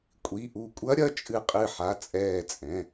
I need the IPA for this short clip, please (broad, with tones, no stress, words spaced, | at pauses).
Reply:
kʷʼi˩˧˩ʔu˧˩kʷʼɐ˦˥ ɾʲɐ˩˧˩t͡ʃʼɨ˧˩qʼɨ˧˩ħa˩˧˩ t͡sʼɛː˧˩t͡sʼɛ̃˩˧˩